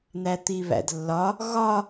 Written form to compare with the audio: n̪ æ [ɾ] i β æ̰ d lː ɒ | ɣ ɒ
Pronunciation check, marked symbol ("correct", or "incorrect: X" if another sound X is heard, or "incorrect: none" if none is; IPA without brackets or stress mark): incorrect: t̪